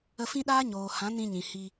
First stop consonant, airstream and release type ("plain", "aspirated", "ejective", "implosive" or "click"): implosive